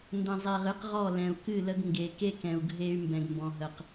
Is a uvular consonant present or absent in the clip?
present